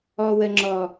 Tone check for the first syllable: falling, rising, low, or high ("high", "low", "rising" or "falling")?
high